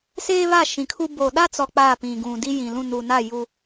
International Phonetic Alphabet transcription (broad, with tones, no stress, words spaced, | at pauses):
seː˦βa˦˨ ʃĩ˨kʰu˦ boː˨ɗa˦t͡sɔ˨ k͡pa˦˨pĩ˨ ɡũ˨di˦jĩ˨lũ˦˨ nu˨na˦˨ ju˦